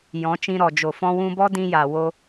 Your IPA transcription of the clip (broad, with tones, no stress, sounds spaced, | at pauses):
j ɔ̃˨˦ t͡ʃ ĩ˧ ɾ ɔ˨ d͡ʒ o˨ f ɔ̃˧ w ũ˧ b ɔ˦ d ĩ˧ j a˨ w o˧